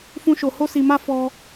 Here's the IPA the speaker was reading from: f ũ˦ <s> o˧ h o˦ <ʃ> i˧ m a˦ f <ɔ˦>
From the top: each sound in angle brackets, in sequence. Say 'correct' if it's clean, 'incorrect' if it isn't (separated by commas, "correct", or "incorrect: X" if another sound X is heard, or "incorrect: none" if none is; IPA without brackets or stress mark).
incorrect: ʃ, incorrect: s, correct